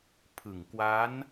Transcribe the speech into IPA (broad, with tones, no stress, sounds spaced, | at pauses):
pʰ ɯ˨˩ ŋ k w a˦˥ n